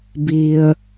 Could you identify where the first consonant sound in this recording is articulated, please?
labial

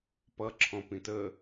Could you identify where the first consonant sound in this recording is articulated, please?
labial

